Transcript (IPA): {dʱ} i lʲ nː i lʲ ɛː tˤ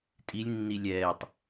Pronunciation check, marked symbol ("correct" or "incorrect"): incorrect